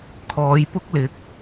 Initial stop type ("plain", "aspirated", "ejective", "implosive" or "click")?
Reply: aspirated